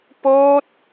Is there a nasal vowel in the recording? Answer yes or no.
no